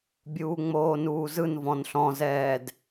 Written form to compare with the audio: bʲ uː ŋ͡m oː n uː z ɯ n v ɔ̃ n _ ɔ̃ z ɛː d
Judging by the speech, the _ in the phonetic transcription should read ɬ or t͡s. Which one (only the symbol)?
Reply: ɬ